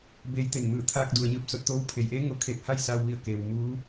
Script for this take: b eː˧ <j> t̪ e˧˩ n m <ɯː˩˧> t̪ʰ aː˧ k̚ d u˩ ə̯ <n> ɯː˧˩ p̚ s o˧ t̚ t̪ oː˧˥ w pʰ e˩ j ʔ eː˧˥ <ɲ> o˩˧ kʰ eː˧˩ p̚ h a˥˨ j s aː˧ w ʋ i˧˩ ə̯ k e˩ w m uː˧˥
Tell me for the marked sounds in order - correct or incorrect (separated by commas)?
correct, incorrect, incorrect, incorrect